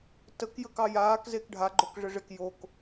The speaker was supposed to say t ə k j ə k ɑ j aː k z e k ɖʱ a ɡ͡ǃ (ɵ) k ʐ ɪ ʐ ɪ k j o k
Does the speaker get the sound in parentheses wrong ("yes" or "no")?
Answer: yes